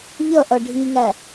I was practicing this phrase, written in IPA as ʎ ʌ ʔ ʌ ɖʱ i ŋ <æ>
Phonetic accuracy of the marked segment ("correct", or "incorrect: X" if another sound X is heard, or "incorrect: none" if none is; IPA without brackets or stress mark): correct